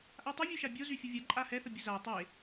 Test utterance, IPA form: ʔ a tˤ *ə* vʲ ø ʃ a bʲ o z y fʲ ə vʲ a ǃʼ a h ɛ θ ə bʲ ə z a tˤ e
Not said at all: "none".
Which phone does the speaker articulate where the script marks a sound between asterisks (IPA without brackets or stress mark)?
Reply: ə